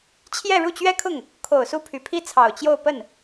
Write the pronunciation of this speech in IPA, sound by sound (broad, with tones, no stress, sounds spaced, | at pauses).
t͡ɕʰ j ɛ˥˧ ɻ u˥˩ t͡ɕ ɥ ɛ˥ kʰ ʊ˥˩ ŋ | kʰ o˨˩ ʊ̯ s u˥˩ pʰ y˨˩ pʰ i˥˩ t͡sʰ ɑ˨˩ ʊ̯ t͡ɕ j o˥˧ ʊ̯ p ə˥˩ n